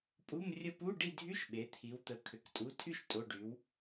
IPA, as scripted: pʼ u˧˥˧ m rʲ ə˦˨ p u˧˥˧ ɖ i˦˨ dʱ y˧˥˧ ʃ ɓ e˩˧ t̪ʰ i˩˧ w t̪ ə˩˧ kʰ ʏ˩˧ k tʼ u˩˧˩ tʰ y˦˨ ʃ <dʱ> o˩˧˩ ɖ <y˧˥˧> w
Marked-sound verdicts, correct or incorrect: incorrect, incorrect

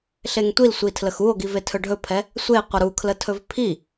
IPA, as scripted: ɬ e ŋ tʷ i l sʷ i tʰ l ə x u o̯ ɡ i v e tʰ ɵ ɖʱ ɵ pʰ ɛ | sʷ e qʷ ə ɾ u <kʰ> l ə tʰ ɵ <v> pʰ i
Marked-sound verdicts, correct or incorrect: correct, correct

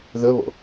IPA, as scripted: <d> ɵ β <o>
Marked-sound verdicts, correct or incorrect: incorrect, incorrect

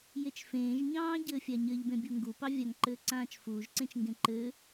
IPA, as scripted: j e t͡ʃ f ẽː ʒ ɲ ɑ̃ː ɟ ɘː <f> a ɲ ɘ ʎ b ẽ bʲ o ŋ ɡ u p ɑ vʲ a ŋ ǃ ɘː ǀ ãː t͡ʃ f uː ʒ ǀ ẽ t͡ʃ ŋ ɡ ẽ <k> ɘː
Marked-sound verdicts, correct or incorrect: incorrect, incorrect

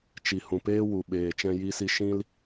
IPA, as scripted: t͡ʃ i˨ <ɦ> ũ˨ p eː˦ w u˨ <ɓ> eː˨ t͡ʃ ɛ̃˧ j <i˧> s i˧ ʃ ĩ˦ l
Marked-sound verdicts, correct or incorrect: incorrect, correct, correct

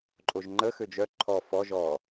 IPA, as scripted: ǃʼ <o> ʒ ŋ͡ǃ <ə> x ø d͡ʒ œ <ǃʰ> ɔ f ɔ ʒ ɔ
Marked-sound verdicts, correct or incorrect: correct, correct, correct

